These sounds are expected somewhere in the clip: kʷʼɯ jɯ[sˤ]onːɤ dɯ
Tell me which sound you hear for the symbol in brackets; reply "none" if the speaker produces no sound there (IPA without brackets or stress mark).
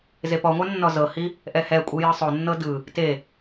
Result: sˤ